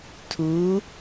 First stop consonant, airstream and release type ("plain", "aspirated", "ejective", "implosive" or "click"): aspirated